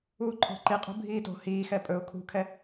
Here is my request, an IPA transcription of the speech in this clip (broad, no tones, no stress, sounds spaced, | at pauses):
uː ǃʰ ɔ̤ ǃ i qʼ ṳ bʱ iː t o̤ h iː x ɛ pʼ ɵ ʊ̯ kʰ ṳ kʰ ɛ